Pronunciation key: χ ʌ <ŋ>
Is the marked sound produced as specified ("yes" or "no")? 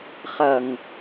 yes